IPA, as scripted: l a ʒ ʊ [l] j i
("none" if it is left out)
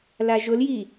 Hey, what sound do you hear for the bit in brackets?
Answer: l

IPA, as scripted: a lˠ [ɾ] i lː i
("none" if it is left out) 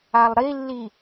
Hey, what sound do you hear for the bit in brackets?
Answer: ɾ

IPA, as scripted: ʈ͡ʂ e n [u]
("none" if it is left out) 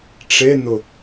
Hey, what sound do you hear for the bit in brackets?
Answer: ʊ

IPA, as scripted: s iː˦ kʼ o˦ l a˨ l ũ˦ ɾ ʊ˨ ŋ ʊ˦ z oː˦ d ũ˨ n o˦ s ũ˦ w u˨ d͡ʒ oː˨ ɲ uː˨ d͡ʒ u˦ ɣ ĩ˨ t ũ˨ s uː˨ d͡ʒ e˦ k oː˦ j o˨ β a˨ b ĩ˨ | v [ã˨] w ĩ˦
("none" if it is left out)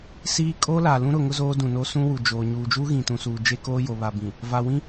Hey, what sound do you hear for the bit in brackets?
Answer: a˨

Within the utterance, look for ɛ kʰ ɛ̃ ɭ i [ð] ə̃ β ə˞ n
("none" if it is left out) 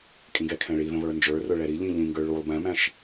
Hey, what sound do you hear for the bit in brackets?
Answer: ð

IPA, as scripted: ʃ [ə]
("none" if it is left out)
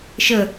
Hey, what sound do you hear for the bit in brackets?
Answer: ə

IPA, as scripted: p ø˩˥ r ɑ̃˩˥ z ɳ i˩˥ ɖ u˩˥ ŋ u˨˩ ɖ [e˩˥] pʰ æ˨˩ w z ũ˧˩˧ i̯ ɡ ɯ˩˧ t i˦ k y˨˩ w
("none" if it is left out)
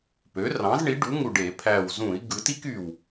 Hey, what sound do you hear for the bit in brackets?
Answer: e˧˩˧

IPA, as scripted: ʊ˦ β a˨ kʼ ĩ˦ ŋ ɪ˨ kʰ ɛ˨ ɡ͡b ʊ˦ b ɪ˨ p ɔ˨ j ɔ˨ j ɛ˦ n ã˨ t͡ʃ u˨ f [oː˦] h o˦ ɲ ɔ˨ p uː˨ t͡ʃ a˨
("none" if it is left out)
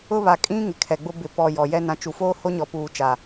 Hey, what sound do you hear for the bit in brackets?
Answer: oː˦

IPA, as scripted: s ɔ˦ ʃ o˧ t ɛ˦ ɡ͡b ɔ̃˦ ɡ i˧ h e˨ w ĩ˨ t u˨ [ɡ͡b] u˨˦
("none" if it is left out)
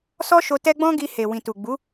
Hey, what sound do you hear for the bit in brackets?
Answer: ɡ͡b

